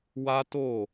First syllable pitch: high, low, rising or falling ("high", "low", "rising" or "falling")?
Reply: high